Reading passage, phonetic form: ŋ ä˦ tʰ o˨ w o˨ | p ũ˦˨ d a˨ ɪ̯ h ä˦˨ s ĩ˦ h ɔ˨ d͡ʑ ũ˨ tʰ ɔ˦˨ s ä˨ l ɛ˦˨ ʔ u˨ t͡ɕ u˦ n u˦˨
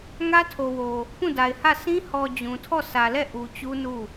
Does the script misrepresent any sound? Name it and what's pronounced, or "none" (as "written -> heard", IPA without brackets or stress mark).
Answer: none